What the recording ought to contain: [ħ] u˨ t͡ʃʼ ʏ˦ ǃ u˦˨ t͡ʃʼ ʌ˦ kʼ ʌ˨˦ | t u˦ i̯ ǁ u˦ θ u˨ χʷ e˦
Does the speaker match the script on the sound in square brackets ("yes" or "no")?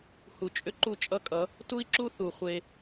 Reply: no